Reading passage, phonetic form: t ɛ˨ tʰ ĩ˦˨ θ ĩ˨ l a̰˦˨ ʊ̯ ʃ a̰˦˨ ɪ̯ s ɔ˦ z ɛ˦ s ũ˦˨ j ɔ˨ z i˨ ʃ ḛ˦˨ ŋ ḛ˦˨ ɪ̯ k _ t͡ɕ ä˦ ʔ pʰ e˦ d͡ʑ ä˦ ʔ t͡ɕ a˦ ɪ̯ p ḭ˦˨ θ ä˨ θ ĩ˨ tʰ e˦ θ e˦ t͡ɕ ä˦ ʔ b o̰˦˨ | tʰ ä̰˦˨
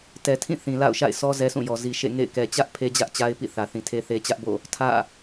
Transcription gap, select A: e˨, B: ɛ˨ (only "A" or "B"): B